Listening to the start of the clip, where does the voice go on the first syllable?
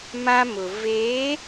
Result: high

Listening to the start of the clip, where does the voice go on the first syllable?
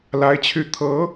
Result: rising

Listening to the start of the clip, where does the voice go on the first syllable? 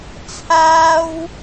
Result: high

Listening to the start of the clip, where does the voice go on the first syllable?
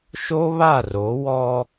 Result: high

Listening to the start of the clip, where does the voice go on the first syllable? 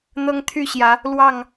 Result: high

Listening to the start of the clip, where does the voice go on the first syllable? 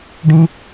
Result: high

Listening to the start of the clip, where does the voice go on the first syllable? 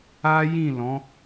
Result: high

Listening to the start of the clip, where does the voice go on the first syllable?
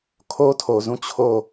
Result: high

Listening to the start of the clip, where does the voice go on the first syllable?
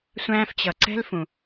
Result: high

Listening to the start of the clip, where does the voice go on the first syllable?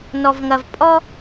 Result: low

